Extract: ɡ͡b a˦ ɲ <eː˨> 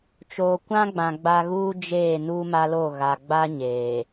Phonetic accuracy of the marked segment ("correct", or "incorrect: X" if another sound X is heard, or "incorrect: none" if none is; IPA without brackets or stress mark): correct